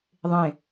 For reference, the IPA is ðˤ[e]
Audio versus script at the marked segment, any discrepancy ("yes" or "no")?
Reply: yes